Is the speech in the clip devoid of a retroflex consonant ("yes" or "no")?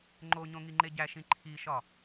yes